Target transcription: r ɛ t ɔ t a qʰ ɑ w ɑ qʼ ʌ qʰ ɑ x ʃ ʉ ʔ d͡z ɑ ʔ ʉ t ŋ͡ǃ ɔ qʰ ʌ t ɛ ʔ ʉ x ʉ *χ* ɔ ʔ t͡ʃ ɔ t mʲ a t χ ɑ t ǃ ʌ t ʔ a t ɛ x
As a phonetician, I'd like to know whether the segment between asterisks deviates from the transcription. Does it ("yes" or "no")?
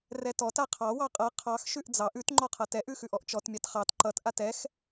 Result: yes